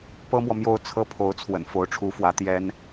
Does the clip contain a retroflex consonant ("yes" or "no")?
yes